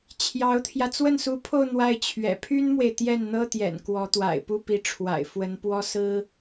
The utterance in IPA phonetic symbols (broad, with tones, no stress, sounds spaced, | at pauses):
t͡ɕʰ j ɑ˧˥ ʊ̯ t̪ʰ j ä˧ t͡s w ə˥˩ n s u˧˥ pʰ o˥˧ ʊ̯ n̪ w a˥˩ ɪ̯ t͡ɕʰ ɥ ɛ̰˨˩ pʰ y˥ n m w e˨ ɪ̯ t̪ j ɛ˥˩ n n̪ ɤ˥ t̪ j ɛ̰˨˩ n k w ɔ˧˥ t̪ w a̰˨˩ ɪ̯ p u˥˩ p i˧˥ ʈ͡ʂʰ w a̰˨˩ ɪ̯ f w ə˧˥ n p w ɔ˥ s ɹ̩˥